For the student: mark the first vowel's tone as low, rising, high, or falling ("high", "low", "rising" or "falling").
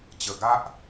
low